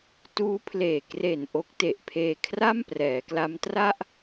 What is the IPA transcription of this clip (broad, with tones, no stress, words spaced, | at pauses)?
tuː˦˥pʰleː˨˩kre˨˩n ʔo˦˥k̚te˨˩ʔpʰeː˧ kʰra˥˩mprɛː˩˦kla˦˥m tra˥˩ʔ